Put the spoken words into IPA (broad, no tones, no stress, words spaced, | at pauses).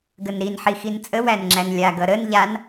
ɡənɾin ħixint͡sʼə wænŋ͡ǁænlʲa ɡʌɾən ʎan